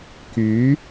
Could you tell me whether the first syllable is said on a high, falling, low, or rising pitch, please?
rising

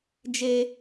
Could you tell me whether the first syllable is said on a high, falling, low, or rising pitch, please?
high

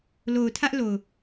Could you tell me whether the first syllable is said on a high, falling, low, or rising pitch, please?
low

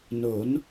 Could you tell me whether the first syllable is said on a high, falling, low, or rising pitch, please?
rising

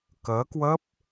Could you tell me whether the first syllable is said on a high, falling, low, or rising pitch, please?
rising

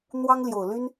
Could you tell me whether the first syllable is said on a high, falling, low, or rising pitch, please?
high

